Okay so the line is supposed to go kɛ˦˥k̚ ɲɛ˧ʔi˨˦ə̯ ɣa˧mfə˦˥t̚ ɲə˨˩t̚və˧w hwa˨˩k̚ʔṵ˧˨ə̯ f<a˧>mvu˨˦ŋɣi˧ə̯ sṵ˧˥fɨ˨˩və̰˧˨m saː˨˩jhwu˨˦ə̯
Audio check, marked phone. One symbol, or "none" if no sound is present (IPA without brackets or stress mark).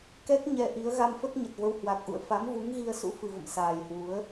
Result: a˨˦